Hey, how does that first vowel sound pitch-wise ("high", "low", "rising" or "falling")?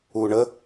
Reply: low